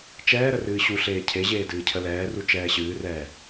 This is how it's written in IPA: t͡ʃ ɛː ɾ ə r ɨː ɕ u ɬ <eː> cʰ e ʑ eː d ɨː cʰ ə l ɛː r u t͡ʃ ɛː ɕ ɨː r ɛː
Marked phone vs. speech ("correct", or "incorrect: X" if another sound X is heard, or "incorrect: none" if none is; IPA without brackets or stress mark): correct